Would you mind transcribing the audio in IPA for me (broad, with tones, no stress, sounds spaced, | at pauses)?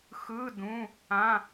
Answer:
x ɯ˧˥˧ d ũ˧˥˧ | ã˧˥˧